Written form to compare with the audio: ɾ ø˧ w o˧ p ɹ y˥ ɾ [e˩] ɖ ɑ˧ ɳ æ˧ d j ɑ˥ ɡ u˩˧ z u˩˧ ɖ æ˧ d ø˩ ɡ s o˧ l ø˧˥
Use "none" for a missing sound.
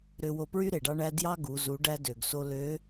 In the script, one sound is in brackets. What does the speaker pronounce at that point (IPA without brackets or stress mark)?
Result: e˩